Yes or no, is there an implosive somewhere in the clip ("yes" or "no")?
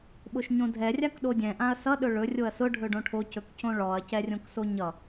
yes